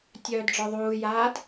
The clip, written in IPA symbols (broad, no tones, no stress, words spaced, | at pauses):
tʲœːdɖ͡ʐɔðˤuːjaːd